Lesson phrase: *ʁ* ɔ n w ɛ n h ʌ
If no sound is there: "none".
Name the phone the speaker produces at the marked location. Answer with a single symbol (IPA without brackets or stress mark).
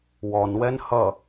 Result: w